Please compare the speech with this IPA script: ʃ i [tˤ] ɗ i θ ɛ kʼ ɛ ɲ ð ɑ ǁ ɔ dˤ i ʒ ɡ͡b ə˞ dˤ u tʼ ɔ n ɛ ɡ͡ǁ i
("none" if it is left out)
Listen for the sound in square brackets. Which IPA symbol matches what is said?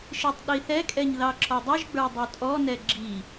tˤ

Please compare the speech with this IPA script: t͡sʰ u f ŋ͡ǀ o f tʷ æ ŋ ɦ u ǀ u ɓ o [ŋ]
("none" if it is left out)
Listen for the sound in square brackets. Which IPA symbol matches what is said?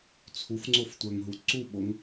ŋ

